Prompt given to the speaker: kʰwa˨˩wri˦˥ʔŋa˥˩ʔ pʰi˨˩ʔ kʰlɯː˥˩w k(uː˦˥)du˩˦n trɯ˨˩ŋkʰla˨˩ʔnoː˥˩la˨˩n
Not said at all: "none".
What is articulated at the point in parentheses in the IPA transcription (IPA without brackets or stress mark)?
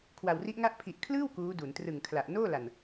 uː˦˥